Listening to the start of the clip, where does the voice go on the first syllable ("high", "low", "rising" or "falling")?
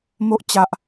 high